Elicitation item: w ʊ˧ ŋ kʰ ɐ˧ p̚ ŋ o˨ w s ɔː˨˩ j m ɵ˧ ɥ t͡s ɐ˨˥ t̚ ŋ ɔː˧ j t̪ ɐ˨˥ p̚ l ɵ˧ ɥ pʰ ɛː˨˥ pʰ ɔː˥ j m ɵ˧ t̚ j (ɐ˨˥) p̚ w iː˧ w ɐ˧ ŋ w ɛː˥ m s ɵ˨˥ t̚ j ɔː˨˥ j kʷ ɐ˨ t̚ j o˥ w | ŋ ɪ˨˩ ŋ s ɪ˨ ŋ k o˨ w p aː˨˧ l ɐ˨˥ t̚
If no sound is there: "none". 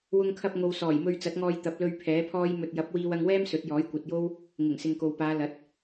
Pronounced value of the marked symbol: ɐ˨˥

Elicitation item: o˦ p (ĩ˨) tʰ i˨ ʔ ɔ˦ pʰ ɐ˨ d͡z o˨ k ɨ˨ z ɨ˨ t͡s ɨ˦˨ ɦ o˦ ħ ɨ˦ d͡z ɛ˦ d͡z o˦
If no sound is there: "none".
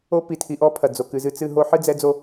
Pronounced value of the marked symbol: i˨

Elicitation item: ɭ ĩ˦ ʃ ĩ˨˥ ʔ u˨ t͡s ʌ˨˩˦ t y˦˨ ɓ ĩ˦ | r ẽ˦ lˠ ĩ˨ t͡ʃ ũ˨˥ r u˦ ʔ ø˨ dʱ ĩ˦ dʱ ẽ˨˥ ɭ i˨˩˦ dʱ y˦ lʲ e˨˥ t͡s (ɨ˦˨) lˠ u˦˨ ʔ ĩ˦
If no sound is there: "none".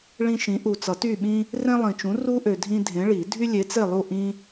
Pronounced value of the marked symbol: e˦˨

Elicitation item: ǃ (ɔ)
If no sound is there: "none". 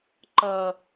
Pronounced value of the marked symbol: ʌ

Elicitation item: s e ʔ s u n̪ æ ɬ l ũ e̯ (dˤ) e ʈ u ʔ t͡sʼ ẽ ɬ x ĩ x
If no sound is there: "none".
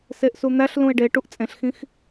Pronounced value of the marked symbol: ɖ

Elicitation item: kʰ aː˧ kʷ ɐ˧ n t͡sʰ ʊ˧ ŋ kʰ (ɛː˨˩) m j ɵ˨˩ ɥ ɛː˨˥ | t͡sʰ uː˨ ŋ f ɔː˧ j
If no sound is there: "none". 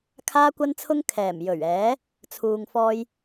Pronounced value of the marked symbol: ɛː˨˩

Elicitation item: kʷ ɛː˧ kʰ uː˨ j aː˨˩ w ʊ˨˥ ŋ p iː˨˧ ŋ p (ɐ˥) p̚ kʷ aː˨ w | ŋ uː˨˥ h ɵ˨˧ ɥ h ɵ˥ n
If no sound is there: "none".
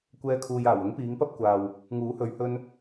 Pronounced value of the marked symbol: ɐ˥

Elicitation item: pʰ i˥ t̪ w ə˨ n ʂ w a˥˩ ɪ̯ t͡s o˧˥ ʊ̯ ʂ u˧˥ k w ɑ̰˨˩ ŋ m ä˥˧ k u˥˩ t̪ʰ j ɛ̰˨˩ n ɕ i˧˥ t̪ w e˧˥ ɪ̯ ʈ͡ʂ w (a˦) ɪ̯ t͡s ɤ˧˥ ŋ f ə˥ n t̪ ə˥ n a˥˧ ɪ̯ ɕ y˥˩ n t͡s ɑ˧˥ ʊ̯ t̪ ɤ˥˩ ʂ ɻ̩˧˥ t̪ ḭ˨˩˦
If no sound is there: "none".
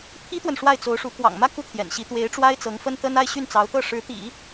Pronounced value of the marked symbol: a˥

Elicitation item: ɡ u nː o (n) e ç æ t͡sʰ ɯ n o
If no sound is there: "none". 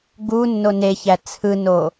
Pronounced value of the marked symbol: n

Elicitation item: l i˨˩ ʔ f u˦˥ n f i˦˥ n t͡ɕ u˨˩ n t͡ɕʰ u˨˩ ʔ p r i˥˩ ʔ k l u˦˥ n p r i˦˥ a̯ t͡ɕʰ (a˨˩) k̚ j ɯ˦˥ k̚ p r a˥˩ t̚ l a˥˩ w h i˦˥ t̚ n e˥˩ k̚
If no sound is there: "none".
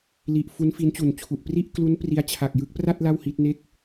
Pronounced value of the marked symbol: a˨˩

